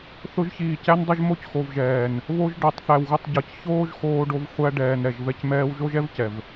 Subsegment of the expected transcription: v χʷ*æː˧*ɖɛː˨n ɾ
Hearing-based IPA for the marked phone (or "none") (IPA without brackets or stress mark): æ˧